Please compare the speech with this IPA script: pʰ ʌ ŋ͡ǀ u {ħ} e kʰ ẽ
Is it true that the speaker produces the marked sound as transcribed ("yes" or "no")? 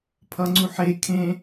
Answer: yes